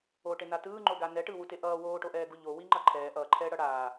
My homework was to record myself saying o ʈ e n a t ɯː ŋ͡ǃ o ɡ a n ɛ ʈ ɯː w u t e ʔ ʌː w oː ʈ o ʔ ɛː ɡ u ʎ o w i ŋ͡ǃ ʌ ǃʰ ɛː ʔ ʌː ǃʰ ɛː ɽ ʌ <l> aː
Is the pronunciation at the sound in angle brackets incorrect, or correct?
incorrect